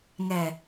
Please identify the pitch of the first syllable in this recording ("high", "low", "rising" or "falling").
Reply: low